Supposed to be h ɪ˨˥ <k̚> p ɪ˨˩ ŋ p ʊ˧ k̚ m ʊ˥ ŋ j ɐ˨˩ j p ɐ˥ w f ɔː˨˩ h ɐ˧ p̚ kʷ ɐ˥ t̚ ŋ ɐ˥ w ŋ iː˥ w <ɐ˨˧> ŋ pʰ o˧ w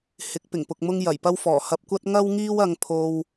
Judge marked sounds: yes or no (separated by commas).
yes, no